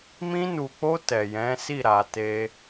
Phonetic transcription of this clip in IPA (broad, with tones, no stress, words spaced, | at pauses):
mĩ˧nu˨k͡po˧ tɛ˨jɛ̃˨˦si˦˨ ɾa˨te˧